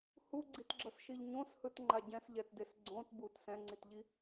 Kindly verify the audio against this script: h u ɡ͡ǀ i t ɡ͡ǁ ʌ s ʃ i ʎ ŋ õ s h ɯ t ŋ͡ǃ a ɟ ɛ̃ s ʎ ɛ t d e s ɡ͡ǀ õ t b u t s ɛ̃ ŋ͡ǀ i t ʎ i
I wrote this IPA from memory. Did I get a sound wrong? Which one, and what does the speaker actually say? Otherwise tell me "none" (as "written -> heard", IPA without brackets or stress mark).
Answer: ŋ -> ɲ